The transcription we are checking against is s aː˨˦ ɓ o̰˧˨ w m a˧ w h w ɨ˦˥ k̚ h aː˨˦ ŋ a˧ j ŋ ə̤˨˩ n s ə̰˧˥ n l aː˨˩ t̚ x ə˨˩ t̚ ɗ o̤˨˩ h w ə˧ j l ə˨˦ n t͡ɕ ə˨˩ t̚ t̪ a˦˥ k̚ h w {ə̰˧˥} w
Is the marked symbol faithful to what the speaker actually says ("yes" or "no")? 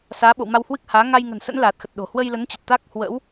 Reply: yes